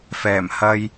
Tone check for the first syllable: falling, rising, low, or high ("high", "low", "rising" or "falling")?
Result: low